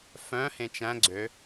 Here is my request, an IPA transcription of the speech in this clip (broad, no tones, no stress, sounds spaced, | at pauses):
f œ̃ h ẽ t͡ʃ æ̃ ɡ͡ǀ ø